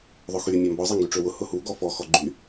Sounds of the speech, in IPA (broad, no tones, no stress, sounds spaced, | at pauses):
ðˤ ʊ x y mʲ a m b ɔ zˤ e ŋ ɡ y ʈ͡ʂ ø w ʊ h ʊ h u ɡ ɔ f ɔ x ɔ ɡ͡ǃ y